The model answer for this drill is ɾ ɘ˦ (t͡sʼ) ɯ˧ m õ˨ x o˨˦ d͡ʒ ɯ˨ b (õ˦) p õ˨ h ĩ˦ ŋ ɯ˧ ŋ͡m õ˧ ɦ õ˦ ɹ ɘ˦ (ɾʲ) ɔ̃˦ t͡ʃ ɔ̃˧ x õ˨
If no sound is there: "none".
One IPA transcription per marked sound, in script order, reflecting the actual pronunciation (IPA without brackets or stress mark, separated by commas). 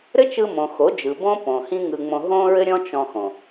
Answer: t͡ʃ, õ˦, ɾʲ